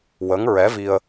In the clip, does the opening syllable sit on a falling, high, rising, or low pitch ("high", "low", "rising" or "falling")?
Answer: rising